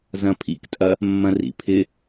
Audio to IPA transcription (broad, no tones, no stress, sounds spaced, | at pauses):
z ɐ̃ pʰ ḭ k tʼ ɐ | mː ɐ̃ r ḭ pʰ ɪ